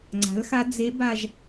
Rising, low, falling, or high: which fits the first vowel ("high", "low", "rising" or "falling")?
rising